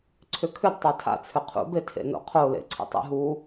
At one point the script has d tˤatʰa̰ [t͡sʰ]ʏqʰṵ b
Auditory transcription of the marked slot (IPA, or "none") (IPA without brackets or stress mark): t͡sʰ